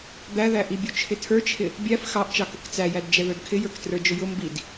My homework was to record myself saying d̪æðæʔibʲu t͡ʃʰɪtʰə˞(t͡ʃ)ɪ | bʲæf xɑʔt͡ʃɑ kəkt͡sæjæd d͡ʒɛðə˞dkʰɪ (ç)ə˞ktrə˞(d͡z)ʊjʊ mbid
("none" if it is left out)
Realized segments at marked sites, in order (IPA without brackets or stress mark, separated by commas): t͡ʃʰ, j, d͡ʒ